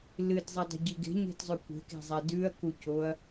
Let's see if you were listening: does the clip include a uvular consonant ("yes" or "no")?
no